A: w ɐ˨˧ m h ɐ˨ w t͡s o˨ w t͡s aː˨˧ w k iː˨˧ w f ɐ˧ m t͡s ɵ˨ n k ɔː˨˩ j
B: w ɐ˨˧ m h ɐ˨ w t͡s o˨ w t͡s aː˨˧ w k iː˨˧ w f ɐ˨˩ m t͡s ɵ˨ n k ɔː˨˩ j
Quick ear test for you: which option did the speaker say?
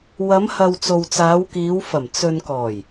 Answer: B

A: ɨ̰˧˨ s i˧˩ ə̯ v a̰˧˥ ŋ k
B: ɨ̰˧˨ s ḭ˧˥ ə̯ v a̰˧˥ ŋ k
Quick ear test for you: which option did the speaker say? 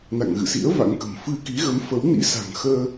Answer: B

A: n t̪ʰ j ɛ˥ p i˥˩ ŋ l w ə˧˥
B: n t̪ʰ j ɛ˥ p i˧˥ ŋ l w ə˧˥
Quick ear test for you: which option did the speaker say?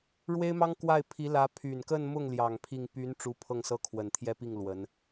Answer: A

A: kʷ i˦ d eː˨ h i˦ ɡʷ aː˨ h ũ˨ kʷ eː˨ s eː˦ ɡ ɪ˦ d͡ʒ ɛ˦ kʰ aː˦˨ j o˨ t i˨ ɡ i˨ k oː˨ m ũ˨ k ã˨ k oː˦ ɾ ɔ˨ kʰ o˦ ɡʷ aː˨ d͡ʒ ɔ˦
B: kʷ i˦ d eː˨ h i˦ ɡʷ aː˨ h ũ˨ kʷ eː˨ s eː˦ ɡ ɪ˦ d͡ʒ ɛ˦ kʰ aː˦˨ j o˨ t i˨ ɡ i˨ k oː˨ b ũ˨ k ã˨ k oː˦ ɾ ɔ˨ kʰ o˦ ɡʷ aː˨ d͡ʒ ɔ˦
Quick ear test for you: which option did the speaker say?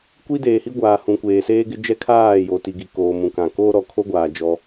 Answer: A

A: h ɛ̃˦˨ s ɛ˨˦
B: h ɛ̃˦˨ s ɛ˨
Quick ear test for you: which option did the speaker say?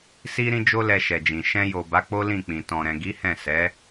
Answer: A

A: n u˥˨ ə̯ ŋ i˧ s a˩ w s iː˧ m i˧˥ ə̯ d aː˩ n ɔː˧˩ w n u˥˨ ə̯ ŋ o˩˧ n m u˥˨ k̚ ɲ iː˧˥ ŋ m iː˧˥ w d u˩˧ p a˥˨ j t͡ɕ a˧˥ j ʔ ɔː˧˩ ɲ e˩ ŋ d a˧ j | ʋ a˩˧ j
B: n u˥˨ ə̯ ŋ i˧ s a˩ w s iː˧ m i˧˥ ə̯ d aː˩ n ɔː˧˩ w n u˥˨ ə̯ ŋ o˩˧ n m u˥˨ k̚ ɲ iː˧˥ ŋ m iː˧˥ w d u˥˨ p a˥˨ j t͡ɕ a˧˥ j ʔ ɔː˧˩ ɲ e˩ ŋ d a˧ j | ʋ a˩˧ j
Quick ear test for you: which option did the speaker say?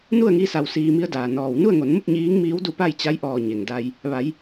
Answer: B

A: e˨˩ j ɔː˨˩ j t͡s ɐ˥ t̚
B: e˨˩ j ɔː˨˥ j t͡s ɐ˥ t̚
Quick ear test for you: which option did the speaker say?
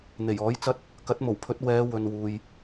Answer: B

